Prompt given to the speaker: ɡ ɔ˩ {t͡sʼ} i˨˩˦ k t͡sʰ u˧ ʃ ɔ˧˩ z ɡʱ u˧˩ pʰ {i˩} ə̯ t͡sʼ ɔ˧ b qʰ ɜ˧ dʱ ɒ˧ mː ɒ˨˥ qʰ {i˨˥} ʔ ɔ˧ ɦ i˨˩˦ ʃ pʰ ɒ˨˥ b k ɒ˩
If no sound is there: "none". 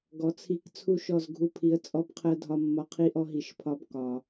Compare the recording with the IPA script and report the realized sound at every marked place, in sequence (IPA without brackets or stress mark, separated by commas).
t͡sʰ, i˨˩˦, i˨˥